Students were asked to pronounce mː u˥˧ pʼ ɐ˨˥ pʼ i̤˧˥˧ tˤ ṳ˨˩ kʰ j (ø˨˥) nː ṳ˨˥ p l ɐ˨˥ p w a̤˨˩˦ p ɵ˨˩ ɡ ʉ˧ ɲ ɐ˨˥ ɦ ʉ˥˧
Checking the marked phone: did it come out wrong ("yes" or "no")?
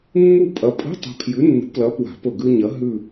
yes